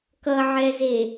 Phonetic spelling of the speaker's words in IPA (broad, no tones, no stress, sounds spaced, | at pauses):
k ʌ ʕ ɛ z e